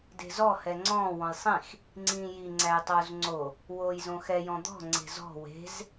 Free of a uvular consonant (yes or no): yes